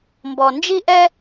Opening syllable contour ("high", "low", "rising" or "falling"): low